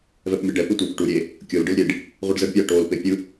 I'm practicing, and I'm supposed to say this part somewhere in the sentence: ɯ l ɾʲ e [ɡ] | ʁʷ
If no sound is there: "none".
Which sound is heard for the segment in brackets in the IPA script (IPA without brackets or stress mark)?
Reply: ɖ